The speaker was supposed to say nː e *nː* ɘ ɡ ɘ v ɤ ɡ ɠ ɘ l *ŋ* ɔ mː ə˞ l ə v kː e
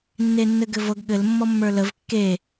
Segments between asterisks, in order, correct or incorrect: correct, incorrect

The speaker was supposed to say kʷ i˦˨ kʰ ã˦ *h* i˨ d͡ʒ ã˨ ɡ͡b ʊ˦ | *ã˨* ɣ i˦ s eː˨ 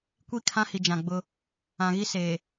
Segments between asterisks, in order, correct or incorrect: correct, correct

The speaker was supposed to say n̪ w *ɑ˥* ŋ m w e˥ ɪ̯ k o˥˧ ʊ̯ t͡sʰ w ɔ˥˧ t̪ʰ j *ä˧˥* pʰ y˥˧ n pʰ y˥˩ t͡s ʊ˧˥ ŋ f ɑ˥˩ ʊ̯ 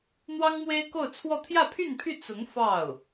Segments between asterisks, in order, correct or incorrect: correct, incorrect

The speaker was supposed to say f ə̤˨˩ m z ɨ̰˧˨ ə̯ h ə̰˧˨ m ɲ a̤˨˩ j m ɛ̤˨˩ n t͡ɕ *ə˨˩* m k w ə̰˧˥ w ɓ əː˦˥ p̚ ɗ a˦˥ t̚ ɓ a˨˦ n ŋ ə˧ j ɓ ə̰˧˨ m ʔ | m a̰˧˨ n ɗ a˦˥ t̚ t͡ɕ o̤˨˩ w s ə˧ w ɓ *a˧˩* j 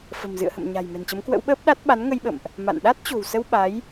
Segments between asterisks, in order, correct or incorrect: incorrect, incorrect

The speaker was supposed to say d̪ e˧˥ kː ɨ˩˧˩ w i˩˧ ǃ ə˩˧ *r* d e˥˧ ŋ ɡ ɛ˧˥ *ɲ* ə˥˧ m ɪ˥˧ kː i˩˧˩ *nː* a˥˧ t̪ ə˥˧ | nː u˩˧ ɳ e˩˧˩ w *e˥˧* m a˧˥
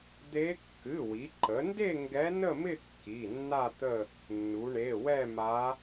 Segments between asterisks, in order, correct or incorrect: incorrect, incorrect, correct, incorrect

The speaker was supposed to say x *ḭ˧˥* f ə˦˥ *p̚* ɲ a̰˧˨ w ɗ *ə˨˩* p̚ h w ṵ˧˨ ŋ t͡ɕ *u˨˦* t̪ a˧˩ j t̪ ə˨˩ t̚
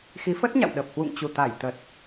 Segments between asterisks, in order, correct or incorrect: incorrect, incorrect, correct, incorrect

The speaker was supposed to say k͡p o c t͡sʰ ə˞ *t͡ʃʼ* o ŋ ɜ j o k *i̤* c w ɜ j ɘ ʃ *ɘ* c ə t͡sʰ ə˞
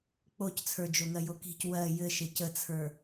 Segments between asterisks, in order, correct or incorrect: incorrect, correct, correct

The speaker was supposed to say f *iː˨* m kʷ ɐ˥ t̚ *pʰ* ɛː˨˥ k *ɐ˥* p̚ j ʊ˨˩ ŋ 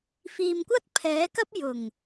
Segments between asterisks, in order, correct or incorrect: correct, correct, correct

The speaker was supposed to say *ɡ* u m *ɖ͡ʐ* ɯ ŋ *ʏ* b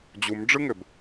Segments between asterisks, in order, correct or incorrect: incorrect, correct, correct

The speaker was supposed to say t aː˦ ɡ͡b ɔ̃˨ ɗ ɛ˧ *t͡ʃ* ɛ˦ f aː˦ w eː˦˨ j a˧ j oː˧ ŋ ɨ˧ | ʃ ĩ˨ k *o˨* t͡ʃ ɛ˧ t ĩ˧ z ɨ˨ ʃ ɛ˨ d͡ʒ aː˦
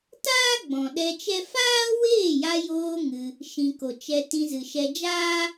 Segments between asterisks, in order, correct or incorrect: correct, correct

